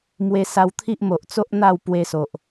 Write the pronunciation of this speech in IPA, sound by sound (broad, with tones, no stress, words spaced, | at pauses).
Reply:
mwe˧sa˧wt̪ʰi˦ʔmo˨ʔ t͡so˦ʔ n̪a˥˧w pwe˧so˨ʔ